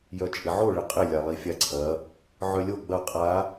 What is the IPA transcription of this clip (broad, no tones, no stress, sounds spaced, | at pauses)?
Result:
j œ t͡ʃʼ ɪ ʕ o ɭ ɪ qʼ ɪ lʲ a lˠ i fʲ a ǀʰ ɐ | ʕ œ lʲ o ɡ͡b ɐ qʼ a